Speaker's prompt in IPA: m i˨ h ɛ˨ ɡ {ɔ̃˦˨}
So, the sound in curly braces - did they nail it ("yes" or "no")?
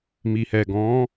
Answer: no